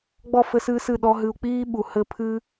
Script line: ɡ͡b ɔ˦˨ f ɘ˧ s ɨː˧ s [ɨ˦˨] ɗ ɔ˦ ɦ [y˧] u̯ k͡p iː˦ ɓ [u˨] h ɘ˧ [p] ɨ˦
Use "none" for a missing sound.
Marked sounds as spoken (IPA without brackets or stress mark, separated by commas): ɨ˦˨, ɨ˧, u˨, pʰ